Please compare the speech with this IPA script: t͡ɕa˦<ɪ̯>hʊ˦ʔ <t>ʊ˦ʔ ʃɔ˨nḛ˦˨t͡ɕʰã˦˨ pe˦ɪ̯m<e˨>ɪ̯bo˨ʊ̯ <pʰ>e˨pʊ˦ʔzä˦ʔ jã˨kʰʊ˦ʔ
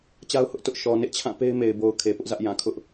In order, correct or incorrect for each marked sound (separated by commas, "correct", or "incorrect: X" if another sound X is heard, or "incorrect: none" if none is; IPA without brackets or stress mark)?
incorrect: ʊ̯, correct, correct, incorrect: kʰ